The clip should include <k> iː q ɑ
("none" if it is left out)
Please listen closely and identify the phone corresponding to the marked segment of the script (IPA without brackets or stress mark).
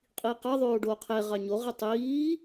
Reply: qʼ